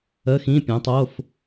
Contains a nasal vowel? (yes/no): yes